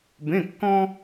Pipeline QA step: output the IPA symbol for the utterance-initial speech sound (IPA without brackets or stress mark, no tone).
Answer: b